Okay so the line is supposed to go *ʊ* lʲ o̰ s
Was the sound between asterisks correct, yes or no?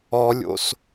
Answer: no